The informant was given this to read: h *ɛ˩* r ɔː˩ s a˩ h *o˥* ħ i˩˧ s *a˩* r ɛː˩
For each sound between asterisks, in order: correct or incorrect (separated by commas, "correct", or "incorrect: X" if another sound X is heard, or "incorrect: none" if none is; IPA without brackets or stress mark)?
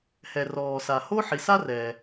correct, correct, incorrect: a˥